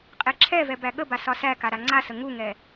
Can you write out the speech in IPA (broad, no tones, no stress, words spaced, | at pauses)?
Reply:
qʼeǁʰɛvɛ bæɠəba sɒsæka ɾaŋ͡ǀasə ŋuŋɛ